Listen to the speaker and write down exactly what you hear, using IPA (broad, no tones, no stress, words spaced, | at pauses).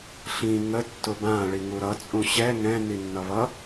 ɬĩ ŋə tːʊbã ɭiŋuɾʌ t͡sʼũɕɛ ŋɛ̃ ninːʌβʌ